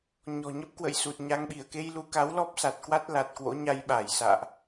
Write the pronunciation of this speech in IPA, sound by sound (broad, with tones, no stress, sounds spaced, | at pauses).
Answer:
ɲ ɔ̤˨˩ ɲ ə˦˥ p̚ k w ə̰˧˨ j s u˨˩ t̚ ɲ a˧ ŋ ɓ i˧˩ ə̯ k e˧ j l u˧ k a˨˦ w l ɔ˦˥ p̚ s a˨˩ t̚ k w a˦˥ t̚ l a˨˩ t̚ k w o̰˧˥ ɲ a˧ j ɓ a˧˩ j s a̰ː˧˨ ʔ